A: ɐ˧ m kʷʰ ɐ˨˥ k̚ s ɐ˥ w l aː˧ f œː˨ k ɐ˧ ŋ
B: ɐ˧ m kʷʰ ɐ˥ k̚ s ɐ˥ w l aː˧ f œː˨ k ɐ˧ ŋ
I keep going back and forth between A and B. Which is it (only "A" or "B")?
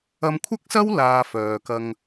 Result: B